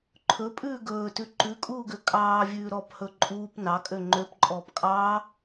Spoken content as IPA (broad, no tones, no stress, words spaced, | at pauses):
ǃʰɵpʼʉː ɡɵːtʉ ǃʉkʼuːɡø kʼɑːvʲʉː ɾɔphɵ ǃʼuːp nɑkʼø ŋ͡ǃøpǃʼɔːp kʼɑː